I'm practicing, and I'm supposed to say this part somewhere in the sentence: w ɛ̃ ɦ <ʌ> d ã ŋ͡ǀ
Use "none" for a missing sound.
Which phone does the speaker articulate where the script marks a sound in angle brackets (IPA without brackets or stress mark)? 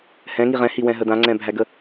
ə